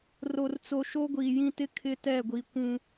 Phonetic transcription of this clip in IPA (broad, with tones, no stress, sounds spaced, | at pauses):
r o˨ r t͡s o˨ ʃ o˦ ɡʷ iː˨ j ĩ˦ t ɪ˦ kʰ ɪ˦ t ɛ˦˨ ɡʷ i˨ kʷ ũ˨